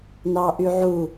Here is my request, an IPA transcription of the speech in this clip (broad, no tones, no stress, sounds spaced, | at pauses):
n ɑ ʔ y ʕ u